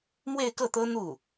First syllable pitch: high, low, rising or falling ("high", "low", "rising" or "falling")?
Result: falling